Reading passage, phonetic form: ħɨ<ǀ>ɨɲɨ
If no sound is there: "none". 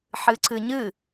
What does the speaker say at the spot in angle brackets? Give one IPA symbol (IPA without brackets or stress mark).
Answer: ǀ